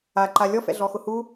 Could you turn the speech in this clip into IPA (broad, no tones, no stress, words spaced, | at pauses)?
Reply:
aǃa lʲɔfɛ̰ɮɔ xʊhu